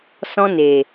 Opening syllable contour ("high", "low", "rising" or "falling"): high